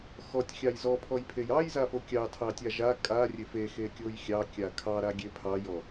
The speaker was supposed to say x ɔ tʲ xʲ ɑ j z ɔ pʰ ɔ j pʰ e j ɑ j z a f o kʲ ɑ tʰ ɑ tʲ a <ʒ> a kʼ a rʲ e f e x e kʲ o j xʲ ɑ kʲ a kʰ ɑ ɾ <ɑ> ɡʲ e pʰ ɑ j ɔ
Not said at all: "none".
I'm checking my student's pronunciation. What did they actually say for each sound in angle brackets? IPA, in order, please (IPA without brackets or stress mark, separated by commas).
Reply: ʒ, a